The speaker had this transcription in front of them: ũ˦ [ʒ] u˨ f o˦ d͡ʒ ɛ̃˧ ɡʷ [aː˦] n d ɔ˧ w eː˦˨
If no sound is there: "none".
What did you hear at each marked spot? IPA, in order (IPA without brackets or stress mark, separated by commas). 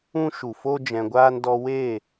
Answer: ʃ, aː˦